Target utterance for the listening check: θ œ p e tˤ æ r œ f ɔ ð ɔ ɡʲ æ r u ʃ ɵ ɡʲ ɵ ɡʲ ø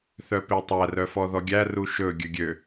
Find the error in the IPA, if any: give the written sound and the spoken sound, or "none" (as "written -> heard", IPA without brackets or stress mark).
none